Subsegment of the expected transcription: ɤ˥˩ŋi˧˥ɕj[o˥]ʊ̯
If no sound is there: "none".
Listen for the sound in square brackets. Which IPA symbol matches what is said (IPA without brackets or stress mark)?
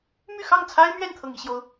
o˥